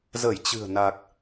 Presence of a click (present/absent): absent